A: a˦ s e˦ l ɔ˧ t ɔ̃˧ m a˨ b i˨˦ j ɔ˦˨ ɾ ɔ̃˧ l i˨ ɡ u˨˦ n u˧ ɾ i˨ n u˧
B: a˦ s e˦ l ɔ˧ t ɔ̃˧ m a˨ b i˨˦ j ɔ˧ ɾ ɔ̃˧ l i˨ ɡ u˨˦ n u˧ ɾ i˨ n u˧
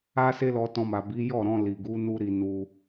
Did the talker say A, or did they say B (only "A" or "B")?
A